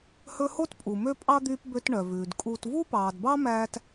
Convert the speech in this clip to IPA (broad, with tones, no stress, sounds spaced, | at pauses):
h ɵ˦ h o˥ t pʼ u˨ m ø˥ pʼ ɑ˥ d̪ yː˦ p b ø˦ t ɳ œ˩ v ʉː˩ d kʼ uː˨ t v u˥ p ɑː˩ d b ɑ˥ m æː˥ t